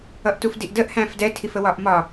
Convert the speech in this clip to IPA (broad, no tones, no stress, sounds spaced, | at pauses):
ʌ ʔ t u f d i ʔ d ə ʔ h æ̃ f d ɛ tʰ i f ə w ɒ ʔ m ɒ